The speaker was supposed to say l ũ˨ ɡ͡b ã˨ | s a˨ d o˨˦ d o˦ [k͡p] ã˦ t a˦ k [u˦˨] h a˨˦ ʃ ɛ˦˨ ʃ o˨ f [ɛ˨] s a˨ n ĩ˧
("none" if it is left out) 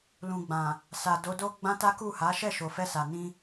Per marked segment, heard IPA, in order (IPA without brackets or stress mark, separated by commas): ɡ͡b, u˦˨, ɛ˧